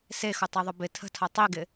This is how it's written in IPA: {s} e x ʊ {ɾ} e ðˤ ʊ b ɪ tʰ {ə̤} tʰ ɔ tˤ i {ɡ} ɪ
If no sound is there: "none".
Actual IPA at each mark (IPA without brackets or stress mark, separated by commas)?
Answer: s, tˤ, ə̤, ɡ